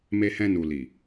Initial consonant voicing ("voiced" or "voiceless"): voiced